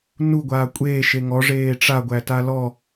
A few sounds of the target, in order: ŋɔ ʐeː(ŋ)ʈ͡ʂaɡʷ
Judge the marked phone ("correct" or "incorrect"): incorrect